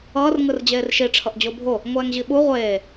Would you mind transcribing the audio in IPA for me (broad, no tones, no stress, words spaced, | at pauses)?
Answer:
ʌːr ŋɯrd͡ʑeːrʃi ʈ͡ʂʰʌʔd͡ʑobʱo | ŋʷɛːŋʑiɓu ʁʷeː